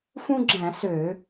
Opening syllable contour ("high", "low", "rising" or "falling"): high